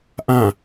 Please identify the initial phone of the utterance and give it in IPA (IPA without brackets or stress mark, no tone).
ʔ